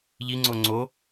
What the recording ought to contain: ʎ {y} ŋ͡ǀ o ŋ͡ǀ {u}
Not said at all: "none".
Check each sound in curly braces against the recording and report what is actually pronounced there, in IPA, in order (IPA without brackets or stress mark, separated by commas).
i, o